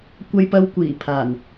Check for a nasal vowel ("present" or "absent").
absent